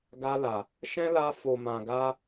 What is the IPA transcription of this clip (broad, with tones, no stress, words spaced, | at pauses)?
ɡa˧la˨ | ʃɛ̃˦la˧ fo˨mã˨ɡa˧